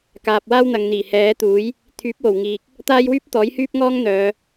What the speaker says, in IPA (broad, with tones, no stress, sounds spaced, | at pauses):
k aː˨ p̚ w aː˥ w n̪ ɐ˨ ŋ n̪ iː˨˩ h ɛː˨˥ t̪ uː˨˥ j | t̪ʰ yː˨˥ p̚ w o˨˩ w ŋ iː˨ k̚ | t̪ aː˥ j w yː˥ p̚ t̪ ɔː˨˥ j h yː˥ p̚ ŋ ɔː˥ ŋ n̪ œː˨˧